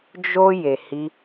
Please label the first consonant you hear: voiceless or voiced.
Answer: voiced